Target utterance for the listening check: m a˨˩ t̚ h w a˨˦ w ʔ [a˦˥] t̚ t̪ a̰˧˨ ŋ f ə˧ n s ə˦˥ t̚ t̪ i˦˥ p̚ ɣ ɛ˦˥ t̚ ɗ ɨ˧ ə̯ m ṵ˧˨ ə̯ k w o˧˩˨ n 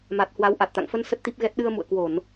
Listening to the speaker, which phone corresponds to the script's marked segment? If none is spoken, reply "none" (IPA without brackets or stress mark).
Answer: a˨˩